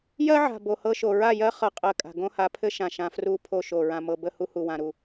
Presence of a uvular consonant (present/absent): present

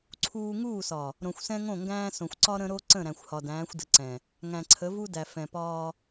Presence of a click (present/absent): present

